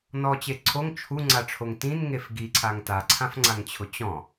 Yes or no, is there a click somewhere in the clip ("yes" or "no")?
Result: yes